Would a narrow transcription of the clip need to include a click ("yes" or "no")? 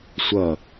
no